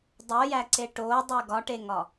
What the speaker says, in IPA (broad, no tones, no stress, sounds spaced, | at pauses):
dˤ o j æ ǀ e ʈ o dˤ e ɡ ɒ ʈ e ŋ ɒ